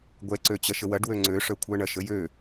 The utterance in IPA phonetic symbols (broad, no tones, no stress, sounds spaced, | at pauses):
ɡʷ ɛ ǀ ø t͡ɕ ɐ ʃ ə w ɐ ɖ w ø ŋ͡ǀ ø ʂ œ kʷʰ œ ɳ ɐ ʃ ə j ø